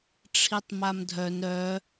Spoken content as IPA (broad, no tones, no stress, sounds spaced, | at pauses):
ʈ͡ʂʰ i tˤ m a m dʱ œ n ɾ œ